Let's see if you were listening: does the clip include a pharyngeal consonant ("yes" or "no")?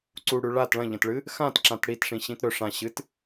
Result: no